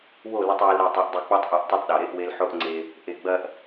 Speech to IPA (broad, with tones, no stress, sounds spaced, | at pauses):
w o˦˨ l ɐ˧ tˤ w e˧ l ɾ e˦˨ tˤ e˧ ʔ dˤ i˧ k͡p ɔ˦ tˤ ʔ ɔ˧ ʔ tˤ o˦ tˤ ɗ ɔ˨ ɾ e˦ ʔ w e˦ l ħ o˦ ʔ ŋ͡ǀ e˧ | ʔ e˨ ɡ͡b ɐ˧ ʔ